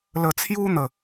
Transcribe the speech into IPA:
l ə˧ t͡sʰ j u˦ n̪ ə˥˧

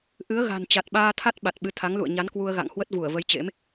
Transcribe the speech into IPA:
ʔ ɨ˨˦ ə̯ ɣ a̤˨˩ n t͡ɕ a˨˩ t̚ ɓ aː˧ t̪ʰ a˦˥ t̚ ɓ a˨˩ t̚ ɓ ɨ˨˦ t̪ʰ a˨˦ ŋ l ṵ˧˨ ə̯ ɲ a˨˦ n k w u˧ ə̯ ɣ a̰˧˨ ŋ h w ə˦˥ t̚ v u˧˩ ə̯ v ə˨˦ j t͡ɕ ḛ˧˥ m

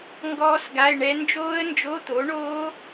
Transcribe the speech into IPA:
ŋ ɡ ɔː˦˥ s ɡ a˧˥˧ ɪ̯ ɳ ɛ˦˥ n d͡ʒ oː˦˥ ə̯ n d͡ʒ o˧˥˧ t̪ o˨˥ ɳ oː˦˥

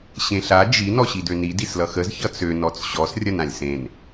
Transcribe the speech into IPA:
ɕ ẽ ɬ a d͡ʒ i n ɔ ɕ i d ø n i d i s l ʌ x ə z ç ʌ t͡s ø n ɔ t͡s ɕ ɔ s rʲ ɐ n ã lʲ s ẽ n

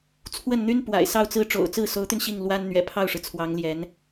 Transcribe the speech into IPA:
t͡sʰ w ə˥˩ n n̪ y˥ n p w a̰˨˩ ɪ̯ s ɑ˥˧ ʊ̯ t͡s ɹ̩˥˩ ʈ͡ʂ o̰˨˩ ʊ̯ t͡s ɹ̩˥˩ s o˧˥ ʊ̯ t̪ y˧ n ɕ i˥˩ ŋ l w a˥ n n̪ ɥ ɛ̰˨˩ pʰ ɑ˥˩ ʊ̯ ʂ ɻ̩˩ t͡sʰ w ɑ˧˥ ŋ l j ɛ˧˥ n

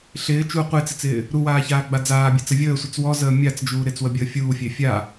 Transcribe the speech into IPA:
ɬ ɪː t͡ʃ u qʷ e t͡s ɪ t͡s ɪː | ɾ u w aː ç aː ɡ͡b a d͡z aː bʲ e t͡s ə vʲ əː sʷ ɪ t͡s w ɔ z əː mʲ a t͡s d͡ʒ uː ɾ ɪ t͡s w ə bʲ əː fʲ uː fʲ e fʲ a

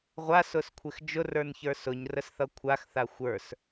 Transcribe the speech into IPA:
ʁʷ a s ʊ s kʷʰ ɪ x d͡ʒ ʊ r ə˞ n ç ə˞ s ʊ ɲ r ə s θ ʌ kʷʰ a x θ a xʷ ə˞ s

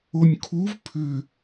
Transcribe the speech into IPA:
o nʲ kʰ u v pʰ ʏ

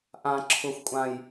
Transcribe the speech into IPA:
ʔ ã˨ ǁʰ ʊ˨ xʷ kʷʼ ã˨ j

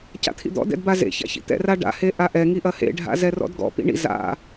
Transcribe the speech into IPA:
c a̰ t̪ʰ ḭ d̪ ɔ̰ d ɛ̰ d b a z ḛ ç a̰ ç ḭ t̪ ɛ̰ r a ɖ a̰ h e ʔ a ʔ ɛ ŋ i ʔ ɐ h ḛ ɖʱ a̰ z ɛ r ɔ̰ d ɡ ɔ̰ p ḭ ɳ ḭ z a̰

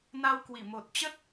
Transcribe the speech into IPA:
n a˧ w k w i˧˩ m o˨˩ t̚ t͡ɕ ə˦˥ t̚

